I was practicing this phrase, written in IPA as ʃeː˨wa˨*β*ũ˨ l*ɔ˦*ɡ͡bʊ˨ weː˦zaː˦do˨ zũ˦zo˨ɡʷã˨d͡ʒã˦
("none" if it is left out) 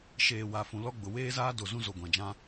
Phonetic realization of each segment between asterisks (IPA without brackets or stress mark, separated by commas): f, ɔ˦